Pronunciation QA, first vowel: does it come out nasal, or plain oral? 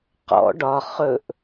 oral